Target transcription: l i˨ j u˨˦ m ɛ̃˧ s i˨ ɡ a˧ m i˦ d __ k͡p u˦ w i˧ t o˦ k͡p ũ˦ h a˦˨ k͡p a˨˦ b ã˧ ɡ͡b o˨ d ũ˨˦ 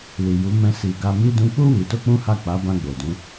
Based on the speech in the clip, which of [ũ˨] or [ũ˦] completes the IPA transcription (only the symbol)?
ũ˦